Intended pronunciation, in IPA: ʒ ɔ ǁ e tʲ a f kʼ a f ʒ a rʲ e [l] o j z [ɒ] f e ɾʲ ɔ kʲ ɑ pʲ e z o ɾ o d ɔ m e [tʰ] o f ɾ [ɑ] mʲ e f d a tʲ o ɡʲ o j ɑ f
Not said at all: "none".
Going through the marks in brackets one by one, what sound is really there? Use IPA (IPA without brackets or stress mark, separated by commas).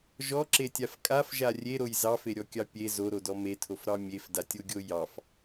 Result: ɾ, ɑ, tʰ, ɑ